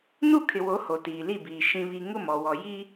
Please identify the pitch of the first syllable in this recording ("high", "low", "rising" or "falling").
falling